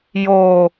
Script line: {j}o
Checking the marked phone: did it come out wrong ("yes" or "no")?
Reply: no